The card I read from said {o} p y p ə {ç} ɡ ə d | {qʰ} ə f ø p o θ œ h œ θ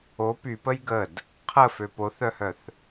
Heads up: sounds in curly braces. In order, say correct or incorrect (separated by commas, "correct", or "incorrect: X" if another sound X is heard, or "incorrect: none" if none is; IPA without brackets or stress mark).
correct, incorrect: j, correct